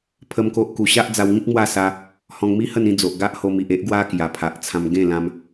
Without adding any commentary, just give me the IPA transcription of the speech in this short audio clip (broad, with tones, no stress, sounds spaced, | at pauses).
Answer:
pʰ ə˦ m k o˦ ʔ k u˧ ɕ a˦ ʔ d͡z a˧ w ŋ ĩ˦ k̚ m w a˥˧ s a˧ | h ɔ̃˧ ŋ m i˦ h ə˥˧ n ĩ˥˧ d͡z o˨ ʔ ɡ a˦ ʔ h o˧ m i˨ ʔ e˦ ʔ ɡ w a˦ k j a˨˩ pʰ a˨ ʔ t͡sʰ ã˧ m ɡ ẽ˥˧ l ã˧ m